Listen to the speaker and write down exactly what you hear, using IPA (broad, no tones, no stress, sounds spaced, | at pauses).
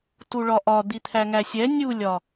t u ɭ ɒ ʔ ɒ d̪ i t̪ʰ æ ŋ æ sʲ ɛ nʲ u lʲ ɒ